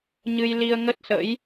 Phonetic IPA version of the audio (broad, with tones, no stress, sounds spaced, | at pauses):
ɲ ɨ˧ j l i˧ ə̯ ŋ ə˦˥ t̚ s ə̰˧˥ j